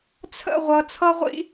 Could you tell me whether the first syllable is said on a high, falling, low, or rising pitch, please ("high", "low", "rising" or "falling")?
falling